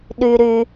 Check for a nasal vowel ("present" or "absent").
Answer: absent